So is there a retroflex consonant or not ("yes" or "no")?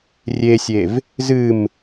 no